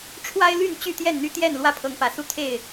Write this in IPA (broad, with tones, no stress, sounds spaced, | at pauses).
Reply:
ʈ͡ʂʰ w a˦ ɪ̯ l y˥˨ n t͡ɕ y˥˨ t̪ j ɛ˥˨ n n̪ y˦ t̪ j ɛ˥˨ n l w ä˦ pʰ ɤ˨˦ ŋ p ä˨˩ s u˥˨ t̪ʰ e˥˨ ɪ̯